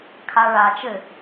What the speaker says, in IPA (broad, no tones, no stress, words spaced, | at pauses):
kʰaɭa t͡ʃɘ